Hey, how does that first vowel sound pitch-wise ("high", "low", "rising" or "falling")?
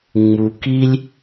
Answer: low